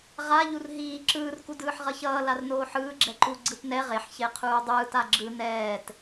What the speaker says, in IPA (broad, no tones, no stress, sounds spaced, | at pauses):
ʁ a ʎ u r ɦ iː ǁ ɯː r k u d ɯː ħ ʁ ʌ ç ʌː l a r n oː ħ ɯː ɡ͡ǁ ɛ ǃ u ɡ͡ǀ ɯ t n ɛ ʁ e ħ ç e qʰ uː dˤ ɯː t a ɡ͡ǁ ɯ n ɛː t